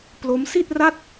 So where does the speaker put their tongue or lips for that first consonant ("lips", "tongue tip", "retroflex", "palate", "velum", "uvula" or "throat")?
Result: lips